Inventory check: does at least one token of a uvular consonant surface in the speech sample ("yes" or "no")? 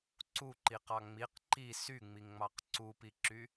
yes